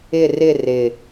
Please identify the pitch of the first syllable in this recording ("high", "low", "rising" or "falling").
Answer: falling